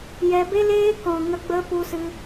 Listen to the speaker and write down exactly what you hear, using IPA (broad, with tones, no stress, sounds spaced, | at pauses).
j ɛ˧ b e˦ l eː˦ k ɔ̃˨ ŋ ə˧ ɡ͡b ə˧ p u˧ s ɨ˧